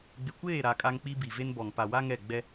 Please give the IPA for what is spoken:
ɡ͡bɪ˨kʷeː˦˨ɾa˨ kʼa˦ŋk͡pi˦ bi˨ve˦nbɔ˨ŋ pa˨wa˦ ŋɛ˦˨ɡ͡bɛ˦

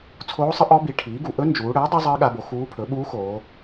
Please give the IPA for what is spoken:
t͡sʰoː˧˥sˤə˧˥ ʔɔ˧˥ bi˩˥ʈʰiː˩˥ɡu˩˧ ʔɵ˧˥nd͡ʒuː˩˧ɽəː˩˥ dˤi˧˥zˤəː˧˥ɠa˩˧bo˩˧ xuː˧˥pʰɵ˩˥ ɓuː˧˥xoː˩˧

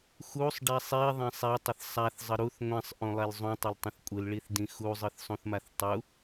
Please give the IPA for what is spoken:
xusˤɖɛ sˤiðˤɛ̃sˤ ɛtˤəθ sˤaθzˤə ɾuθ ŋʷɛ̃sˤʔũlˠɛl zˤũtˤəltˤə̃θ kʷʼɯlɭiθdĩ xuzˤɯθsˤũθmaθ tˤu

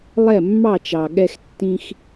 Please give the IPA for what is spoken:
lˠɛ˦˨mːɑ˦˨t͡ʃɑ˨ ɠɛ˧xtːĩ˧x

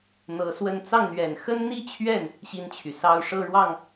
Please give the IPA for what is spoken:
n̪ɤ˧˥swə˥˧n t͡sɑ˥˩ŋn̪ɥɛ˨˩n xə˥nn̪i˥t͡ɕʰɥɛ˥˩n | ɕi˥˩nt͡ɕʰy˩sɑ˥ʊ̯ ʂɤ˥˧ɻwɑ˥˩ŋ

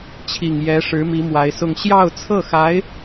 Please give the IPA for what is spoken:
t͡ɕʰi˨˩ŋ jɛ˧˥ ʂɻ̩˧˥mi˧˥ mwa˧˥ɪ̯sʊ˥˧ŋ ɕjɑ˥˧ʊ̯t͡sʰɤ˥˩xa˧˥ɪ̯

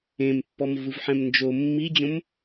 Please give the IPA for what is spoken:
ẽmpːɔmvɯvħɛ̃m nd͡ʒo mːid͡ʑõm

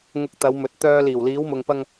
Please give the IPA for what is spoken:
ŋʊ˧k̚t̪ɐ˨˧wmɵ˨˥t̚ t̪œː˨ liː˨˩wliː˨˧wmʊ˨ŋpɐ˧ŋ

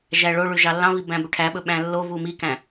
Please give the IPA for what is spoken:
ʒæɭoɭʉ ʒɑlːɑ̃vi bæ̃bɵʈʰæɓɵ ɓæ̃lːovu mikæ̃

